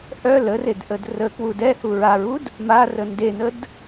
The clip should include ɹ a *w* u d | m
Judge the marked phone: incorrect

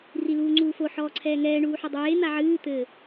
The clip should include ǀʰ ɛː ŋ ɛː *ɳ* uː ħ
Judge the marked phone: correct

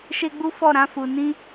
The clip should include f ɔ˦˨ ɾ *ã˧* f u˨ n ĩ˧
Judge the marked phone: correct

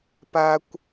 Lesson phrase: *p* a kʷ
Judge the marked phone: correct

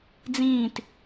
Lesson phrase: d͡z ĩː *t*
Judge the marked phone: correct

